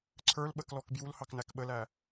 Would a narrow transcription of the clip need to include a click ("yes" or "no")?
yes